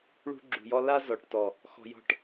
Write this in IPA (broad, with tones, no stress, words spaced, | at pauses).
ɭṳ˧ɡ͡ǁṳ˨jɔ˧ la˧ zɔ˨ʈtɔ˨ | xɔ̤˧jɔ̤˦ʈ